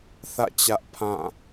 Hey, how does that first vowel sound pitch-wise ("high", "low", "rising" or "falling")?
falling